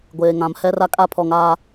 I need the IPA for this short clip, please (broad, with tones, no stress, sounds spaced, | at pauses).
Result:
ɡʷ eː˨ ŋ ã˨˦ m h ɛ˦ r a˦ kʼ a˦ pʰ ɔ˨ ŋ aː˦